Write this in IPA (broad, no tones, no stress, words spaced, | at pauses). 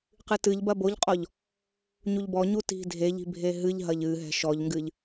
qɨtɨʎbɐ boʎqʼɔʎ | ɲuʎbɔɲu ti̤dʱeʎi̤ bʱeɦɨʎɦɐʎ ɨɦɛ̤ ʃɔʎŋɡɨʎ